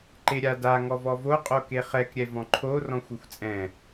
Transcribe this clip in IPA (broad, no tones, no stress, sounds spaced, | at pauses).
ǃ e ɾʲ a d a ŋ ɔ v ɔ v o qʼ o k e χ ɛ k ɾʲ ɛ v ɔ̃ ǃʰ o r ɔ̃ xʷ ɛ xʷ t͡sʼ ɛ̃